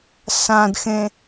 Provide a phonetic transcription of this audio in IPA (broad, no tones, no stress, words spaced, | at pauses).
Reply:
sãdxẽ